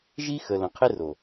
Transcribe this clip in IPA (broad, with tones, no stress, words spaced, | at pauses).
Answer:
ʒi˦xə˨ lə̃˨qʰe˦ro˨